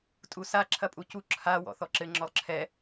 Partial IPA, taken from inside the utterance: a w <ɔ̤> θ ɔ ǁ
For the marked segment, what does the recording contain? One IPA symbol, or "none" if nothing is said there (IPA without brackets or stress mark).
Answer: ɔ̰